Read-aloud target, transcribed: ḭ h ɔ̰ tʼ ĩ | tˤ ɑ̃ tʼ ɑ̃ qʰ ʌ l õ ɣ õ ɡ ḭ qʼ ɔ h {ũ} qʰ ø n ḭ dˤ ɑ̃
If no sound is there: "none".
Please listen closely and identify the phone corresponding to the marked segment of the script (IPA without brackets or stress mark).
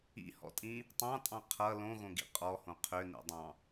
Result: õ